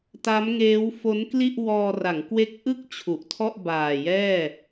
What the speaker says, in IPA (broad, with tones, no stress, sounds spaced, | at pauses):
t a˦˥ m ŋ eː˦˥ w f o˦˥ n k l i˥˩ ʔ w ɔː˧ r a˩˦ ŋ k w e˦˥ k̚ ʔ ɯ˥˩ k̚ t͡ɕʰ u˨˩ ʔ tʰ ɔ˥˩ ʔ b aː˨˩ j ɛː˥˩